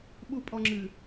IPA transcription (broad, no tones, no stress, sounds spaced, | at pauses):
ɓ u pʼ ɔ ŋ͡ǁ ɨ